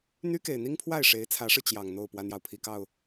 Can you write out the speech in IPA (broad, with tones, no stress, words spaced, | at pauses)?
n̪y˥ke˨˩ɪ̯n̪i˥ŋpʰwa˥˩ɪ̯ ʂe˧˥ɪ̯t͡sʰä˧˥ʂɻ̩˧ t͡ɕjɑ˨˩ŋn̪o˥˩ʊ̯ pwa˥njɑ˨ʊ̯pʰi˨˩kɑ˥˩ʊ̯